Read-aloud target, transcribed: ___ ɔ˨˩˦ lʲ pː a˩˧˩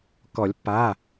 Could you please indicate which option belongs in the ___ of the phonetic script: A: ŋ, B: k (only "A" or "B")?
B